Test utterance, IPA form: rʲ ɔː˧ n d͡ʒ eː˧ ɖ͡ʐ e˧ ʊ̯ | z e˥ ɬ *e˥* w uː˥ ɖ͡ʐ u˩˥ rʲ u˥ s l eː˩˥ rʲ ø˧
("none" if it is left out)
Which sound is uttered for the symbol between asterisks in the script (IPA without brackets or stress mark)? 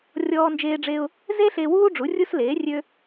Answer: e˧